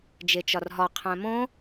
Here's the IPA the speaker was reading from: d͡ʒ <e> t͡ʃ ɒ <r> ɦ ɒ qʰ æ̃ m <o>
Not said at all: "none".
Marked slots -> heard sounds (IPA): e, r, õ

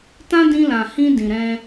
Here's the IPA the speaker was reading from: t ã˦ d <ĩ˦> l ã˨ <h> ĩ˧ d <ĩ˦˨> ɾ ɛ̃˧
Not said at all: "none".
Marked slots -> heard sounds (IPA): ĩ˧, h, ĩ˨

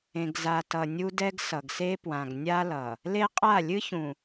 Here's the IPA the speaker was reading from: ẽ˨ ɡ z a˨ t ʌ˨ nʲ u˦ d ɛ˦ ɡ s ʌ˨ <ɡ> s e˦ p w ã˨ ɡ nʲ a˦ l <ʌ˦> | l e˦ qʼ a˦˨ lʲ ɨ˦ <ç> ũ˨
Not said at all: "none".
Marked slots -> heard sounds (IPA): ɡ, ʌ˨, ç

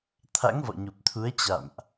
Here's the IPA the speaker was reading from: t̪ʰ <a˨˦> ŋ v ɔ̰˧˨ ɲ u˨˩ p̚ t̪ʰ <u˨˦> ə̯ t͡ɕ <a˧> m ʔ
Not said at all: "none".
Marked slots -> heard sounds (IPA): a̰˧˥, u˨˦, a̰˧˨

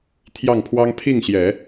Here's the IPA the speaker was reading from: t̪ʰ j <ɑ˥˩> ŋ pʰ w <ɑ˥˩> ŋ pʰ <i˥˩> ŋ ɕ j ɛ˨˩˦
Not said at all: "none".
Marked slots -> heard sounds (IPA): ɑ˥˩, ɑ˥, i˥˩

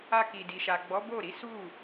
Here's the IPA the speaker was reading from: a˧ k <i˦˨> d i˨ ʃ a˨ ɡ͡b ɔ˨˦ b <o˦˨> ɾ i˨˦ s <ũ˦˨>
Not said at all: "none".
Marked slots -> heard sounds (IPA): i˨, o˦˨, u˦˨

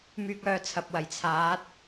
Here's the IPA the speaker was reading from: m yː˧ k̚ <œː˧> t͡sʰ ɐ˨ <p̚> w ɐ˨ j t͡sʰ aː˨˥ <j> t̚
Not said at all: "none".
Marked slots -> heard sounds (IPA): œː˧, p̚, none

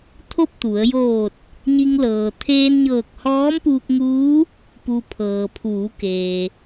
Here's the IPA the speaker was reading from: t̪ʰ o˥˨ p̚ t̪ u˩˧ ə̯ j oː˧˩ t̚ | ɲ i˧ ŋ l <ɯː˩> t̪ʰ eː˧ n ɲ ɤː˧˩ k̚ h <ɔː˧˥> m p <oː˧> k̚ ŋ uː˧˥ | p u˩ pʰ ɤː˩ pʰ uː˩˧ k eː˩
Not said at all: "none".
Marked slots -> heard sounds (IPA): ɤː˩, ɔː˧˥, uː˧

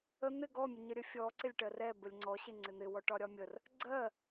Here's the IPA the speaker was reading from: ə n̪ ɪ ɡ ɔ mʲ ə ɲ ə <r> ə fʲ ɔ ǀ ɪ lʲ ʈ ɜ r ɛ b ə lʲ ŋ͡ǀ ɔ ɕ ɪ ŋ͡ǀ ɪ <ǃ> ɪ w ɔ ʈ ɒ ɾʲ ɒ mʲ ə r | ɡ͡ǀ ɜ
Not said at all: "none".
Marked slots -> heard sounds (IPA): ɾʲ, n̪

